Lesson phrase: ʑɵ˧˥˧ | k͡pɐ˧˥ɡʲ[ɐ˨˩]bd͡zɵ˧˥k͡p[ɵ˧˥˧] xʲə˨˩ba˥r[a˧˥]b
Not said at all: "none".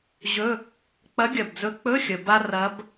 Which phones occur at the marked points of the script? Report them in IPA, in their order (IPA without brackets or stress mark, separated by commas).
ɐ˨˩, ɵ˧˥˧, ɐ˧˥